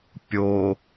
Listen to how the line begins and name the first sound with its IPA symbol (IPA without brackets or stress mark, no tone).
pʲ